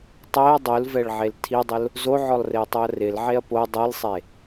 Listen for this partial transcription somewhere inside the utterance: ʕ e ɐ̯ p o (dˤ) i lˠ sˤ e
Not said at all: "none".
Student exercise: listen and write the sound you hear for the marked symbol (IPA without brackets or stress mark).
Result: dˤ